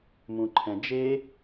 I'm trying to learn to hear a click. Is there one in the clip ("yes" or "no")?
yes